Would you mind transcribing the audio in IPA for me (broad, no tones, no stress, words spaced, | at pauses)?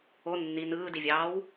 o nːi nɯːdivʲɑːw